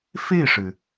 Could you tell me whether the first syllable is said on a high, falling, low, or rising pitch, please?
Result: falling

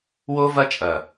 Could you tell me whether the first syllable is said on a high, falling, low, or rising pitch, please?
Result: high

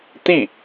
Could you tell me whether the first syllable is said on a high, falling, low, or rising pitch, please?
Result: falling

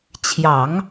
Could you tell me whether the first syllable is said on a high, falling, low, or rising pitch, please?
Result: low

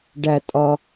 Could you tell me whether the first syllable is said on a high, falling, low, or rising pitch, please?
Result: low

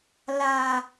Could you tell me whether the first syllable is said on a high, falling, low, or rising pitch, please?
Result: low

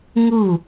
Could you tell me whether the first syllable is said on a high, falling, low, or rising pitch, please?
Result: falling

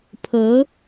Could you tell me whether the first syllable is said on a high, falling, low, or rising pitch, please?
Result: rising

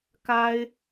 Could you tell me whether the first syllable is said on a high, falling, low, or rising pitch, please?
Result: high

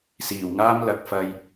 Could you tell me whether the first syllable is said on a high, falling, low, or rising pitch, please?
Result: low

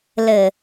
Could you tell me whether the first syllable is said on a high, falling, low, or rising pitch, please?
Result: low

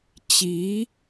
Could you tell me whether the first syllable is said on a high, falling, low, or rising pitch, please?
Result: rising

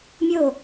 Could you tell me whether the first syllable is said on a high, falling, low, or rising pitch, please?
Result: falling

